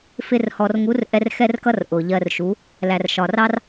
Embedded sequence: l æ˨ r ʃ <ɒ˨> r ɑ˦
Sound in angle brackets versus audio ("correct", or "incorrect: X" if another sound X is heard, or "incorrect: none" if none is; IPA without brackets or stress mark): correct